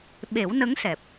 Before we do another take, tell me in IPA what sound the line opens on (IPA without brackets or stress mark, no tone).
ɓ